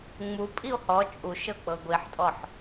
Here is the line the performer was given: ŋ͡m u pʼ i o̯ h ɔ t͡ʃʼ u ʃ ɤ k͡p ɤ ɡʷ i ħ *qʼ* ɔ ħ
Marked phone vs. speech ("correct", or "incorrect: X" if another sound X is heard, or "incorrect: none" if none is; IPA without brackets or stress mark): incorrect: tʼ